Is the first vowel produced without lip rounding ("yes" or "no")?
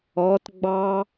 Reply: no